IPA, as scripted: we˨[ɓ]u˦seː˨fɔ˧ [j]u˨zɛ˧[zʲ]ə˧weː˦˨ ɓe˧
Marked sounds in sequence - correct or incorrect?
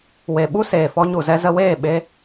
correct, incorrect: ɲ, incorrect: z

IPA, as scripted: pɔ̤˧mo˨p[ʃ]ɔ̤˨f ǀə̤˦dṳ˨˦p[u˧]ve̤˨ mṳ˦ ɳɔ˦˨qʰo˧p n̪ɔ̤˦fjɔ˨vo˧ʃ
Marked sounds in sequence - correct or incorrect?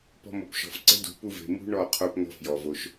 correct, correct

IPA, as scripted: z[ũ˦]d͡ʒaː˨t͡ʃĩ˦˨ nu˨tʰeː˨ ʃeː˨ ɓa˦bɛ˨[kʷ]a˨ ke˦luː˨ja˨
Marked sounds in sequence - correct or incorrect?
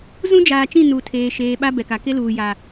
correct, incorrect: k

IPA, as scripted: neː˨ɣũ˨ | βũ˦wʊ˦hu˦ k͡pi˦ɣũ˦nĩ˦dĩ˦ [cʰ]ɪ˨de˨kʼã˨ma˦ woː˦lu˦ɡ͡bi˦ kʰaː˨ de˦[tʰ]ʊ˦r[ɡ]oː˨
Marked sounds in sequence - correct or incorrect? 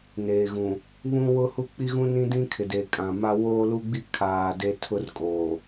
incorrect: kʰ, correct, incorrect: kʼ

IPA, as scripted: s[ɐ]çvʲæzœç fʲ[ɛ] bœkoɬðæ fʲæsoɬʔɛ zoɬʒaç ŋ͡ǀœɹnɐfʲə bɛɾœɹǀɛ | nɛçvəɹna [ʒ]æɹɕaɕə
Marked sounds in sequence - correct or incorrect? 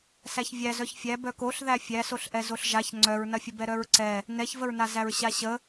incorrect: æ, incorrect: æ, incorrect: z

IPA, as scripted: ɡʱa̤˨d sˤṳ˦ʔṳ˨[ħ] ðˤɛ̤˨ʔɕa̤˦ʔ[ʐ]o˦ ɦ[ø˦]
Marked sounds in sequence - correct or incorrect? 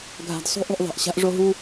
incorrect: ʔ, correct, incorrect: u˦

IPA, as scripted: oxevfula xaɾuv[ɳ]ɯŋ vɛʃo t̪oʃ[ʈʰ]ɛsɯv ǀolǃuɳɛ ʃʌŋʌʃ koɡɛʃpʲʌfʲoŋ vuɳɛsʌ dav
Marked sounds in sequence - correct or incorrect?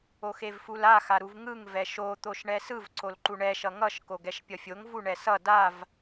incorrect: ŋ, incorrect: ɳ

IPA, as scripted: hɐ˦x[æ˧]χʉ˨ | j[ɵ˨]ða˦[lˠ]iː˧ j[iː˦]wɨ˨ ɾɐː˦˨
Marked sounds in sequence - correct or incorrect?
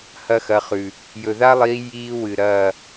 incorrect: ɐ˧, correct, correct, correct

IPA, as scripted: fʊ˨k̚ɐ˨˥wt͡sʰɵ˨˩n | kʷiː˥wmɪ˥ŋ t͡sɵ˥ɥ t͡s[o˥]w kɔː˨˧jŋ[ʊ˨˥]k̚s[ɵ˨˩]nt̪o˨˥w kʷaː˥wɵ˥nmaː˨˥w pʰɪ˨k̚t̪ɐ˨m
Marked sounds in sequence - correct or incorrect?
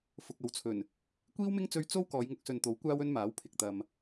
correct, correct, incorrect: ɵ˨

